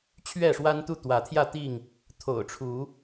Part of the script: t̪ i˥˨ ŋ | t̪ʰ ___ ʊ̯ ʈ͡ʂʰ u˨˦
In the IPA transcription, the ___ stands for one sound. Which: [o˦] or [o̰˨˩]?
o̰˨˩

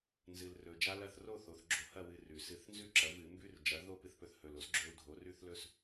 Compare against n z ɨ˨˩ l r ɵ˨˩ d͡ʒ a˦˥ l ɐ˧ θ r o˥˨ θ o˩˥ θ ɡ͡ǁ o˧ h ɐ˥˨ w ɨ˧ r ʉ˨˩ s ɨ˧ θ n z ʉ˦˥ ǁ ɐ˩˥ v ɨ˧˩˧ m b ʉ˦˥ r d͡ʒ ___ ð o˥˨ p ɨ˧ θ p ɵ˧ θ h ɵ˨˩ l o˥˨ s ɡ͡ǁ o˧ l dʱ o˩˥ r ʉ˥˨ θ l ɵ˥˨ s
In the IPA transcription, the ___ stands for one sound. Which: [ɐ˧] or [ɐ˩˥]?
ɐ˩˥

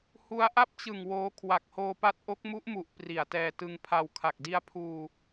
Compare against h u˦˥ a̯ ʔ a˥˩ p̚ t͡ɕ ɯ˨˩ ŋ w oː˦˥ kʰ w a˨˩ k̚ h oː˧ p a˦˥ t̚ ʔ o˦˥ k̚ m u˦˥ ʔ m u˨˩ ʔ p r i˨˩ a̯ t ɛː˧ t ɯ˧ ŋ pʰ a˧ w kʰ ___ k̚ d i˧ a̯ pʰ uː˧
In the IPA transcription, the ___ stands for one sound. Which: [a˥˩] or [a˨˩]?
a˨˩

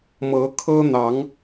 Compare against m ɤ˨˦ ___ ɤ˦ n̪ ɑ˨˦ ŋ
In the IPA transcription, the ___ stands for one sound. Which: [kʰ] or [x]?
kʰ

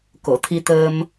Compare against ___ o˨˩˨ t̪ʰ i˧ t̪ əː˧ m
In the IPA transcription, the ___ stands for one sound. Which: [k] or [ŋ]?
k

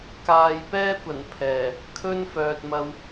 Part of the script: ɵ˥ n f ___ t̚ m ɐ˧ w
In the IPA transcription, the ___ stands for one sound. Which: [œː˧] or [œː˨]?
œː˨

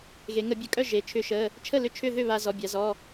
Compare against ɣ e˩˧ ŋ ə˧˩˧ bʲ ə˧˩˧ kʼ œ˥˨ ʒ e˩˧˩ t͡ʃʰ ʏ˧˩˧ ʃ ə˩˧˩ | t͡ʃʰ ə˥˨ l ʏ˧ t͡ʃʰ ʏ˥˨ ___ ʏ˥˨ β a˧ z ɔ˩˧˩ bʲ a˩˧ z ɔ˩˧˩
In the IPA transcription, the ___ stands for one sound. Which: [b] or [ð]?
ð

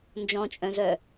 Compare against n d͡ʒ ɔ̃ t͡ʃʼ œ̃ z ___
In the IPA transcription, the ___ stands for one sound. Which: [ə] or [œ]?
œ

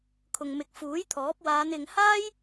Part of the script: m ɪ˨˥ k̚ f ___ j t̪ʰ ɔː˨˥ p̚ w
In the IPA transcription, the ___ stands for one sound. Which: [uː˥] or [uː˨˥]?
uː˨˥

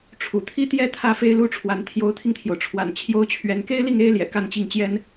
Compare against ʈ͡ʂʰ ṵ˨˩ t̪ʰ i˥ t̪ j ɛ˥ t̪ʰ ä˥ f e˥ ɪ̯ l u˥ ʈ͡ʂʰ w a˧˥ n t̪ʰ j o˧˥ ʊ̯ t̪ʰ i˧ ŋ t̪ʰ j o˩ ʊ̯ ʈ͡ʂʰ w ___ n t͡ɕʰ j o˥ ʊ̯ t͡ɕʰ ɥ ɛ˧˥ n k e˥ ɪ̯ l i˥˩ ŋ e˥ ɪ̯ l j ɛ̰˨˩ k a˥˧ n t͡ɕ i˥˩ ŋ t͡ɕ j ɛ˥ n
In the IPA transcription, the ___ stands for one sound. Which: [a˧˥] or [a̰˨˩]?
a̰˨˩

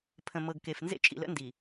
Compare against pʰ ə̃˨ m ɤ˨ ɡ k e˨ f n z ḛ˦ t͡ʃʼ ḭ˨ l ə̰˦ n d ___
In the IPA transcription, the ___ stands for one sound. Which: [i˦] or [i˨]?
i˨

